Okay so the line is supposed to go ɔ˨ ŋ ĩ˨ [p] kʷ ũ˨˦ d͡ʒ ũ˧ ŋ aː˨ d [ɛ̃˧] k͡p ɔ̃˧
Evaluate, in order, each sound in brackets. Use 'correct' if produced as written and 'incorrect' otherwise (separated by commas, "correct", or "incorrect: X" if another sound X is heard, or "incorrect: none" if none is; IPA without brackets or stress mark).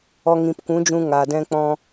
correct, correct